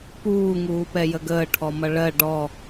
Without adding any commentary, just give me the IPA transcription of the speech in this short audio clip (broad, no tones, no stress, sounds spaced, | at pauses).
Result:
p uː ŋ uː p ɛ j ə ɡ əː ʈʰ ɔ m ʌ ɭ ɜ ɖ ɔ